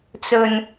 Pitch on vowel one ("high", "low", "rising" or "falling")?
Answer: low